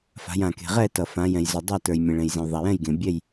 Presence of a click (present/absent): absent